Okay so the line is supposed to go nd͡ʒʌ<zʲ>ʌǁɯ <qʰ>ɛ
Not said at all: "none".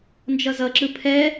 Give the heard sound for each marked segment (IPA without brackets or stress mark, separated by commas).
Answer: z, pʰ